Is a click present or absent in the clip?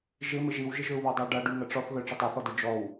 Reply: absent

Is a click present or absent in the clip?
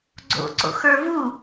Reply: present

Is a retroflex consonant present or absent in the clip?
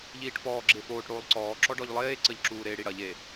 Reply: present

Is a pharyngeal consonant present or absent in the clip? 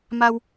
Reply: absent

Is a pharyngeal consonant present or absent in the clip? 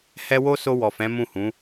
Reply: absent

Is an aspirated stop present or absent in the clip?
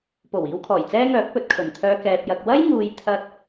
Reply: present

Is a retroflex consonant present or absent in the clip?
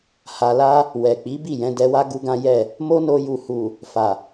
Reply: absent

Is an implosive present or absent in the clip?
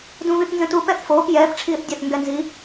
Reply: absent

